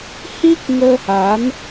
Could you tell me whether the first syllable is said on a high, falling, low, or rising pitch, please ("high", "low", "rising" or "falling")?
high